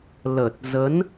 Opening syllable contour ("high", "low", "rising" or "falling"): low